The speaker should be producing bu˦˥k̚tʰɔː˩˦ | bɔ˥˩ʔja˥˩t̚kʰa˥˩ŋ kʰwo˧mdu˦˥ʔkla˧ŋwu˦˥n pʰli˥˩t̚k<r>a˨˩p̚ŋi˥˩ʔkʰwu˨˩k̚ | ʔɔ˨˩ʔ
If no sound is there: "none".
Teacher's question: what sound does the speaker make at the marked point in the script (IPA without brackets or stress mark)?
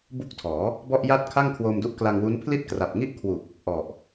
r